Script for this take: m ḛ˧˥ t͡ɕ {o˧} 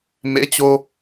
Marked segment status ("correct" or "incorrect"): correct